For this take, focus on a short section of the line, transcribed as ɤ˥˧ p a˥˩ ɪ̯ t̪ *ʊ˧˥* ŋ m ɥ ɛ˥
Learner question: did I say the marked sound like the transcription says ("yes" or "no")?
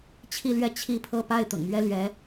no